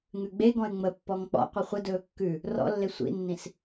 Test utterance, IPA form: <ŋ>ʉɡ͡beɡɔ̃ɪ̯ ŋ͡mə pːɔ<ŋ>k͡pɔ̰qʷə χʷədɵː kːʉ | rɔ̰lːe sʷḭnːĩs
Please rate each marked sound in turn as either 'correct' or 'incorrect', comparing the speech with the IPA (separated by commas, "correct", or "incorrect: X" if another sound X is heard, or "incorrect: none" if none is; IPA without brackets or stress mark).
correct, correct